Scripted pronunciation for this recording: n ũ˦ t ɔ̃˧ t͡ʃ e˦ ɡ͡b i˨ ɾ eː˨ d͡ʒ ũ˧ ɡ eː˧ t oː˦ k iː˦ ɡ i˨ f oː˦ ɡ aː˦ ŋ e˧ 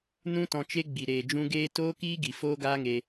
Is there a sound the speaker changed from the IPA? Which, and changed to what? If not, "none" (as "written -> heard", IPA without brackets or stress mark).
none